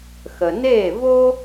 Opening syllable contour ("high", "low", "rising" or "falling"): low